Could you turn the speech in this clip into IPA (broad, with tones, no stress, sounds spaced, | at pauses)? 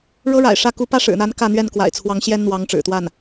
ɻ ɤ˥ ɻ a̰˨˩ ɪ̯ ʂ ä˥˩ k u˧˥ p ä˥ ʂ ɻ̩˨˩ n̪ a˧˥ n k ä˥˧ n̪ ɥ ɛ˥˩ n k w a̰˨˩ ɪ̯ t͡sʰ w ɑ˧˥ ŋ ɕ j ɛ˥ n n̪ w ɑ˧˥ ŋ ʈ͡ʂ ɻ̩˨˩ t̪ w a˥˩ n